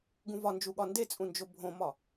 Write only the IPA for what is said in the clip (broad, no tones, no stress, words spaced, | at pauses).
ɡũvɒnd͡ʒuɠɒ ndet͡sʼũnd͡ʒo bʱõmɒ